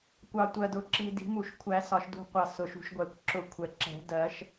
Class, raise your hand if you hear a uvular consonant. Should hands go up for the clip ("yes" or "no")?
yes